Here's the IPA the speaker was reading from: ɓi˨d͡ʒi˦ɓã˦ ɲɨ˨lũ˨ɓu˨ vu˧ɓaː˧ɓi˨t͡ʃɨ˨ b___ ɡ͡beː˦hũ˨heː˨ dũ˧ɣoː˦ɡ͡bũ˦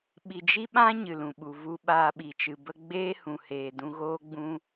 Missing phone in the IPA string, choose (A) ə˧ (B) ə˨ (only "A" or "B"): A